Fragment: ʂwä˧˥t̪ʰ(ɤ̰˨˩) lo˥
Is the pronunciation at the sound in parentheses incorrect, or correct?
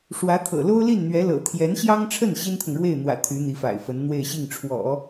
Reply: correct